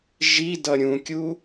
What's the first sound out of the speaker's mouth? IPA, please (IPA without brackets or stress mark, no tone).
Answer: ʒ